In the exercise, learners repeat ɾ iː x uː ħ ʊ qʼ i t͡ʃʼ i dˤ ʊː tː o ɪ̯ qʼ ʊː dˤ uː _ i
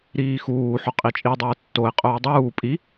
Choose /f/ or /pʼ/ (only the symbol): pʼ